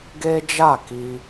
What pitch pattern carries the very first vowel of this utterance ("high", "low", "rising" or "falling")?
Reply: high